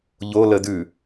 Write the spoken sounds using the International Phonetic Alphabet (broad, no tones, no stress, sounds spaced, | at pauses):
ʎ o l ə d ʉ